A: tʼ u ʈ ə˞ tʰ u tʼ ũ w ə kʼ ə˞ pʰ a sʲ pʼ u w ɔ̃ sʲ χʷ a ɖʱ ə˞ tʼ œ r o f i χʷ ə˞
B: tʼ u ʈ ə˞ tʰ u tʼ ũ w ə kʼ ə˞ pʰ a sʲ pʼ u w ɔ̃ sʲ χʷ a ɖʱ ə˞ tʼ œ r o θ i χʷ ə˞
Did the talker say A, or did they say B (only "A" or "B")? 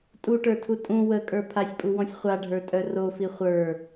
A